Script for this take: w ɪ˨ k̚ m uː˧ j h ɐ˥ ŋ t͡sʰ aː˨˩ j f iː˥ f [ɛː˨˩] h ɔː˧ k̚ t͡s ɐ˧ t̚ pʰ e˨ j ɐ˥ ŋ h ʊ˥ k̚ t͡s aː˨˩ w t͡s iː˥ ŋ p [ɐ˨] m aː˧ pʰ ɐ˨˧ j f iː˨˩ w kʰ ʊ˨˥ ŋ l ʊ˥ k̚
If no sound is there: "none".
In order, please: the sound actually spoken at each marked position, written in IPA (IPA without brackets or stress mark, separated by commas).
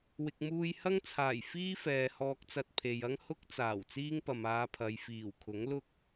ɛː˨, ɐ˨